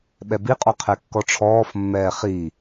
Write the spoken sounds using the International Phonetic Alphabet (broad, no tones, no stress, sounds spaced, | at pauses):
ɓ ɛ b i qʼ ɔ qʰ ɛ kː ɔ ʈ͡ʂʰ ɔː f mː ɛː χ iː